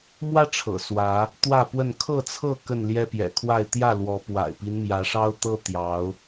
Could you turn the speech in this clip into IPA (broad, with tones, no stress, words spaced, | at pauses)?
mwä˦ ʈ͡ʂʰɤ̰˨˩swä˨˦ | t̪wä˥˨ pwə˥˨n kʰɤ˥˨t͡sʰɤ˥˨ kə˥˨nljɛ˦pjɛ̰˨˩kʰwa˥˨ɪ̯ t̪jä˥˨lwɔ˨˦ pwa̰˨˩ɪ̯pi˦nmjä˨˦ʂɑ˦ʊ̯ t̪ɤ˦ t̪jɑ˨˦ʊ̯